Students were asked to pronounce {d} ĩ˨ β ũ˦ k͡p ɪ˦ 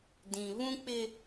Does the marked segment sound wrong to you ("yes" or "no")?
no